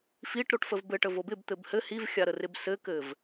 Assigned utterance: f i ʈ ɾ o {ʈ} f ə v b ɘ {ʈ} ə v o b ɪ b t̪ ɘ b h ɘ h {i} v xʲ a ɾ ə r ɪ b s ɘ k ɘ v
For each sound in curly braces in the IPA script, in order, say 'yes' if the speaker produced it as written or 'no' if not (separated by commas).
yes, yes, yes